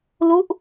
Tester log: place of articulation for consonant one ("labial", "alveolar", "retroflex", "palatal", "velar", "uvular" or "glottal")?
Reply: alveolar